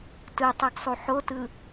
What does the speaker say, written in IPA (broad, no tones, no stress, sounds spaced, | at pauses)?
t ɯ tˤ ɯ ɡ sˤ u ħ o t ɯ